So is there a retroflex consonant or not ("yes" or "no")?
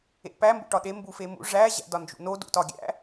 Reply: yes